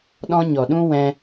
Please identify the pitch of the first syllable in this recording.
high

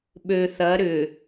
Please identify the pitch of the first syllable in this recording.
low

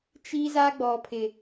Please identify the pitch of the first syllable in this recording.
high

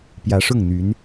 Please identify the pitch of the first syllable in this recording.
rising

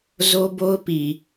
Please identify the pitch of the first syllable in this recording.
high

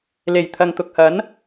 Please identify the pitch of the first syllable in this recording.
low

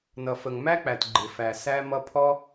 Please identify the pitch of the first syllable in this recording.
low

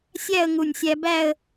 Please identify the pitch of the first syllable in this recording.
falling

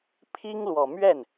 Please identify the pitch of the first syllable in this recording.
high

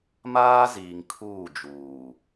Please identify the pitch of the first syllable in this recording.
high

